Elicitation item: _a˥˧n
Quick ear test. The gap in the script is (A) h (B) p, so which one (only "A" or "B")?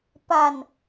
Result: B